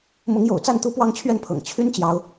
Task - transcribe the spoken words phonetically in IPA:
mʊ˨˦ŋjo̰˨˩ʊ̯t͡sa˥˨nt̪u˦ pwɑ˦ŋt͡ɕʰɥɛ˥˨npʰɤ̰˨˩ŋ t͡ɕʰy˦nt͡ɕjɑ˨˦ʊ̯

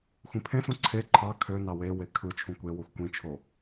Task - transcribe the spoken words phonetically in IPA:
xʷĩpʰẽsũ ǀʰe ǃʰɑ kʰønɑ wewe kʰɯ t͡ʃʰũkʷewoxʷ kʷĩt͡ʃʰo

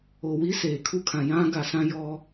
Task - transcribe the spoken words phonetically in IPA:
o˨wi˦ seː˨kʰu˦kʰã˨ jã˦ ɡa˨sã˦jɔ˦

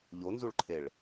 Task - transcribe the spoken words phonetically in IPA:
ʎonzuɭǃʰeɭ

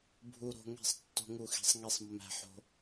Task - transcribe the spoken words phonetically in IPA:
bʱu˧ɾo̤˧ ŋe̤˦˨sˤtːo̤˦ŋu˦˨xi̤˧sˤ ŋi˧sˤmːæ̤˧ħo̤˧

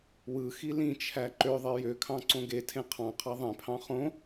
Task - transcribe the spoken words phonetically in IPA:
wɯxi lĩt͡ʃʰæ ǃøðˤe jøkʰɑ̃ ǀõɡetʰẽ qʰɑ̃qʰɑ ðˤẽpʰɑ̃ χõ

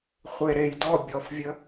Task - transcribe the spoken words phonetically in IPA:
χʷe ɾej dɔ bʲɔfvʲə

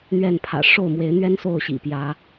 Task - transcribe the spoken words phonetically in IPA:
n̪ɥɛ˥˨npʰä̰˨˩ ʂo˥˨ʊ̯mwe˨˦ɪ̯n̪ɥɛ˦n so˥˨ʊ̯ɕḭ˨˩pjä˨˦

